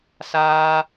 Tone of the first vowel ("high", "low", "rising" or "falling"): high